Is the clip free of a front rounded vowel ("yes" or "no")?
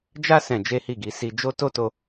yes